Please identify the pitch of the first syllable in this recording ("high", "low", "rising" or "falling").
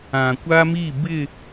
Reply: low